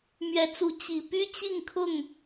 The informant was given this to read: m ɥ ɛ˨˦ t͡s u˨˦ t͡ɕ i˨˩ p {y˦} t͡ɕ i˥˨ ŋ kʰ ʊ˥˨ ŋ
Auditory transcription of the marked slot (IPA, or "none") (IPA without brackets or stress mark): y˦